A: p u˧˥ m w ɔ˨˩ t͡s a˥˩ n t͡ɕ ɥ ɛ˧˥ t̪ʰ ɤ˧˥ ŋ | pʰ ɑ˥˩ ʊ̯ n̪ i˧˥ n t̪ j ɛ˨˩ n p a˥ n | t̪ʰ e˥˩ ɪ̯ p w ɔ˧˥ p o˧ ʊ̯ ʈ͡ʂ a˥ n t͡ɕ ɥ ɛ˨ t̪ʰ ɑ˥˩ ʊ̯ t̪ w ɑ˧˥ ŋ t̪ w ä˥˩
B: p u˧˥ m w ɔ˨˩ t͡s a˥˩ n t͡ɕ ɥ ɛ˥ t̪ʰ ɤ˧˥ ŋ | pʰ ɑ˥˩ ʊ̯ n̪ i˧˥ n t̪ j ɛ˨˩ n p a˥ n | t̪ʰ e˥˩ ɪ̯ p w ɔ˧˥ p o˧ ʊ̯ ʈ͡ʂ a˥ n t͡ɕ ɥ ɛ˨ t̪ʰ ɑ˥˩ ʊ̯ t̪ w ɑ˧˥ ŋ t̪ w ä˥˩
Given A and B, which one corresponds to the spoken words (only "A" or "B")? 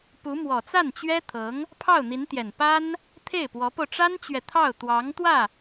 B